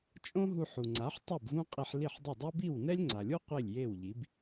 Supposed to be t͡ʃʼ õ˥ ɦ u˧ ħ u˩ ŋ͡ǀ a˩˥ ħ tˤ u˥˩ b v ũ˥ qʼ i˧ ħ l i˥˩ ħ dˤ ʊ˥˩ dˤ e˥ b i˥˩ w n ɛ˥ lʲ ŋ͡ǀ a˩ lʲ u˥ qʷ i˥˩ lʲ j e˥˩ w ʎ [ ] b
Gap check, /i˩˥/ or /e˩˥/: i˩˥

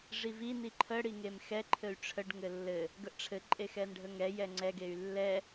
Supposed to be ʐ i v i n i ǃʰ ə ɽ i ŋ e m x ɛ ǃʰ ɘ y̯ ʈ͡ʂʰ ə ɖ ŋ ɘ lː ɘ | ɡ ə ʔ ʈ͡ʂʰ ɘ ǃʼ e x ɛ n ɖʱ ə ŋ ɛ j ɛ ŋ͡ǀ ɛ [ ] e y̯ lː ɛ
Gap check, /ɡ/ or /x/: ɡ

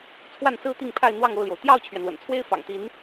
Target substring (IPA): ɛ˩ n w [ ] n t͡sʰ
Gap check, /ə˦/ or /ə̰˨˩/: ə̰˨˩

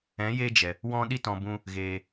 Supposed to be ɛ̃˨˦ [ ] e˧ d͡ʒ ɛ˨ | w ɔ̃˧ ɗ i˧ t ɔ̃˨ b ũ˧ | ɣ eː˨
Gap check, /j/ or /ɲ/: j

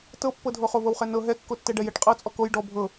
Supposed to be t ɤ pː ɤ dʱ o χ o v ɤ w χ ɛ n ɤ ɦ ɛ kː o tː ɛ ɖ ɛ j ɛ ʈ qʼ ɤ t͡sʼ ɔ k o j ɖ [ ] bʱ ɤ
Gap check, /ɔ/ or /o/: ɔ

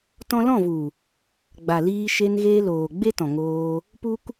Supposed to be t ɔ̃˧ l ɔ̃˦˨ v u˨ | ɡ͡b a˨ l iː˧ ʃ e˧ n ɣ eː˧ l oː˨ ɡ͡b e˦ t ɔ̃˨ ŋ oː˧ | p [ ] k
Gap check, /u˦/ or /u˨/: u˦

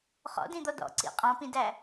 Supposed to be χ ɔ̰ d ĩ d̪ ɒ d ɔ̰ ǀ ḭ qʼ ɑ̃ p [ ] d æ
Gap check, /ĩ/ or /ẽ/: ĩ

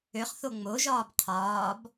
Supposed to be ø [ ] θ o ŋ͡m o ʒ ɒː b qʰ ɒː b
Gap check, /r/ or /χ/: χ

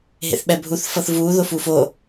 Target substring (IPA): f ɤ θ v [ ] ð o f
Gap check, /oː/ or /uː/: uː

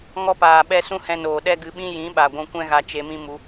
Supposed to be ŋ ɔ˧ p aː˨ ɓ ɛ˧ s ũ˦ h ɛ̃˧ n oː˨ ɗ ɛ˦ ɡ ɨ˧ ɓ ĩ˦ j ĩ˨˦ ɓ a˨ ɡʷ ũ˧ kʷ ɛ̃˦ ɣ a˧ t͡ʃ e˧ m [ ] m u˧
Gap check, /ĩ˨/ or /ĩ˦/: ĩ˦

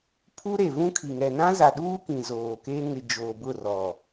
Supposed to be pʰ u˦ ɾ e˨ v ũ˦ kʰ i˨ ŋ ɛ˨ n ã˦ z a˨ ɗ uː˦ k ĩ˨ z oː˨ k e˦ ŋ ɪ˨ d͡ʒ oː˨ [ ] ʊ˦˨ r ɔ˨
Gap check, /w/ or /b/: b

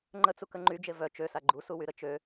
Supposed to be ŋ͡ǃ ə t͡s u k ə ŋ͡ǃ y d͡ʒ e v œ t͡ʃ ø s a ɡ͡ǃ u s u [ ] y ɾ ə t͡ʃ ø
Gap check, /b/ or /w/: w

